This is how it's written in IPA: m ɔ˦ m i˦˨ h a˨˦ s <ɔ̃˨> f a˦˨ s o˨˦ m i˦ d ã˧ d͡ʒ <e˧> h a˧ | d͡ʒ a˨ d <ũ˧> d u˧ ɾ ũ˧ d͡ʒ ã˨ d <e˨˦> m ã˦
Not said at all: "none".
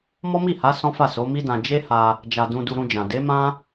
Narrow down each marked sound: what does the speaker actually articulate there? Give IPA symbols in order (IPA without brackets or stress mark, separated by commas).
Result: ɔ̃˦, e˦, ũ˧, e˨˦